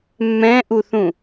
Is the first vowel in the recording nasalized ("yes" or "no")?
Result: yes